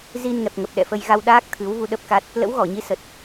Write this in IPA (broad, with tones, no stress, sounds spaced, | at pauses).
z i˧ n ŋ ɛ˨˩ p̚ ŋ ə˨˩ p̚ ɗ ɛ̰˧˨ f ə˧ j ɣ a˧ w ɗ aː˦˥ k̚ t̪ʰ ɨ˨˦ w v u˧ ɗ ə˦˥ p̚ k a˦˥ t̚ | l ə̰˧˥ w ɣ ɔ˧˩ ɲ i˨˦ s ə˨˩ t̚